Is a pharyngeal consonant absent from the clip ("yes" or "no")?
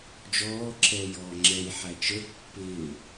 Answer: no